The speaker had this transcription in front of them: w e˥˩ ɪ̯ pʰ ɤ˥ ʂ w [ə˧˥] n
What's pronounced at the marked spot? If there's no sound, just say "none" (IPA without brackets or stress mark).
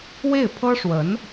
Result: ə˧˥